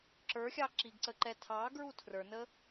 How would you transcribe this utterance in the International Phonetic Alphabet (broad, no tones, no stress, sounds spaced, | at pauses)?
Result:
ǁ ə˞ xʲ ɑ ǁ i ɡ ǀ ə ǃ ɛ tʰ ɑ ɡ ɹ u tʰ r ə˞ n ə